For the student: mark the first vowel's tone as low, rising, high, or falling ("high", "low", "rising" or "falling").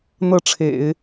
falling